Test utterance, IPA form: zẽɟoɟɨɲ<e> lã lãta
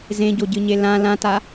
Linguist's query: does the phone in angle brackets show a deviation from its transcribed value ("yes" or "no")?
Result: no